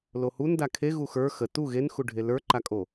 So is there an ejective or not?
yes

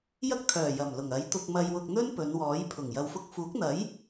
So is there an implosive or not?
no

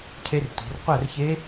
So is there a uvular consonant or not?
yes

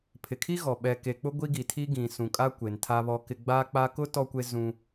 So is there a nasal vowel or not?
yes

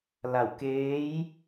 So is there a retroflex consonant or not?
no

